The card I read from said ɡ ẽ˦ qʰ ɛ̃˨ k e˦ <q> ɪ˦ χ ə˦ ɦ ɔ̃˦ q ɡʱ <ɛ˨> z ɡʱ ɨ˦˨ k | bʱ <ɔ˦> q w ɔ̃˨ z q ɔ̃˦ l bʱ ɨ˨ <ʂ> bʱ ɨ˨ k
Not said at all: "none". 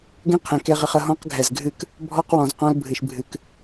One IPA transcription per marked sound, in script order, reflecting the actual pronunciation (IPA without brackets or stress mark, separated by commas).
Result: ʁ, ɛ˨, ɔ˦, ʃ